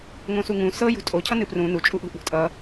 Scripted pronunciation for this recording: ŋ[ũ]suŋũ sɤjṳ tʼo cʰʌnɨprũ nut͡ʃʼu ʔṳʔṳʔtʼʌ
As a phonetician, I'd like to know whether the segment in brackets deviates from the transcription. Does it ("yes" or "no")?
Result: yes